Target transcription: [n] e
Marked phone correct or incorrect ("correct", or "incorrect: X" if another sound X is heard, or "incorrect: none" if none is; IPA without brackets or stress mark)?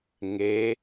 incorrect: ŋ